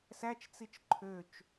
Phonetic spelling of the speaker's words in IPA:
s æ t͡ʃ t͡s i t͡ʃ ǃʰ ø t͡ʃ

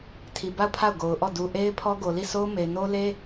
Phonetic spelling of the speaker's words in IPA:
tʰ i˨ b a˦˨ ʊ̯ pʰ a˦˨ ʊ̯ ɡ o˨ ʊ̯ ʔ ɔ˦˨ d u˨ ʔ e˦ ɪ̯ pʰ ɔ˦ ɡ o˨ l i˦˨ s o˦ ʊ̯ m e˨ ɪ̯ n o˦ l e˦

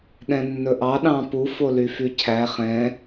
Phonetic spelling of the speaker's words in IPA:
ɗ ɛ̃ nː ɵ ʔ ɑ ɗ ɑ̃ː p u f o l y f y cʰ æ χ ɛ̃

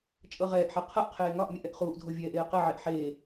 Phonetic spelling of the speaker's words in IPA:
t͡ʃʼ ɤ ʁ ɛː ʔ ħ e qʰ ɤ ʔ qʰ eː ŋ ɒ ʔ mʲ ɨ ʔ ɛ ʔ χ uː ʔ dʱ o vʲ ɛː ʔ eː q ɘ ʕ e ʔ ħ eː

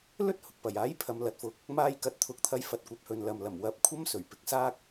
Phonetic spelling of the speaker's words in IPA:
l ɵ˥ t̚ h ʊ˨ k̚ p ɐ˨˩ j aː˨˥ j pʰ ɐ˨˧ m l ɐ˨ t̚ f ʊ˨ k̚ | m aː˧ j k ɐ˨˥ t̚ t̪ʰ ʊ˨ k̚ t̪ʰ ɐ˧ j f ɐ˧ t̚ kʷ ɐ˨˥ p̚ h ɵ˨ n l ɐ˨ m l ɐ˨˩ m w ɐ˨˥ p̚ kʷʰ ɐ˥ m s ɵ˨˩ ɥ p ɪ˨ k̚ s aː˥ k̚

